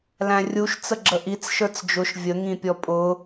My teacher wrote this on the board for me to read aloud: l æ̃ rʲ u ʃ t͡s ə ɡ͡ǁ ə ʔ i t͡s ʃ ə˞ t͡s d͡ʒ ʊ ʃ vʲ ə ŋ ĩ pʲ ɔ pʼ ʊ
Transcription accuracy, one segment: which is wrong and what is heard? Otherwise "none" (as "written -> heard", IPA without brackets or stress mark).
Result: none